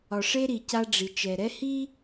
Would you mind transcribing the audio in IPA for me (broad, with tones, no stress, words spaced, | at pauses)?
ɒ˨ʂe˦ ɾi˨ca˦ɖ͡ʐi˨t͡ʃɛ˨ ɾɛ˦hi˦